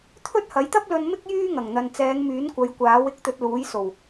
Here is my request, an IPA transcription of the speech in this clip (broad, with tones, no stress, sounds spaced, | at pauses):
t̪ʰ ɵ˥ t̚ h ɐ˨˥ j t̪ ɐ˥ p̚ l ɵ˧ n m ɪ˥ k̚ j yː˥ ŋ ɐ˨˩ ŋ n̪ ɐ˨ n t͡s ɛː˨˧ ŋ m yː˨˥ n kʷ ɐ˨˧ j kʷ aː˨˥ w ɪ˧ k̚ t̪ ɵ˧ t̚ l uː˨˥ j s o˨˩ w